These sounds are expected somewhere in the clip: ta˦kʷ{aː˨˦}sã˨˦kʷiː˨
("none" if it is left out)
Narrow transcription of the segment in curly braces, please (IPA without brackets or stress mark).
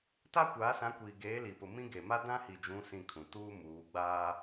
aː˨˦